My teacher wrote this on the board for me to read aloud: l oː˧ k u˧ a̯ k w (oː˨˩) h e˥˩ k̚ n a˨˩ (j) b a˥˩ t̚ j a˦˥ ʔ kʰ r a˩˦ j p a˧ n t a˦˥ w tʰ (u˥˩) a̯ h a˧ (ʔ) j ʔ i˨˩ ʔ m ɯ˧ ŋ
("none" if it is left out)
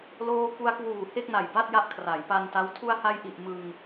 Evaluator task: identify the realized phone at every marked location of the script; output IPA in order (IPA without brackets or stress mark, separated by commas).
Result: uː˨˩, j, u˧, none